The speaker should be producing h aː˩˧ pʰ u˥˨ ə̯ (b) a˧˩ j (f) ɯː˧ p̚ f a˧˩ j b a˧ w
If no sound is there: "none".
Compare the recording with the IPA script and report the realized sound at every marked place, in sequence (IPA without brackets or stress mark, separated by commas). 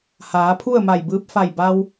m, b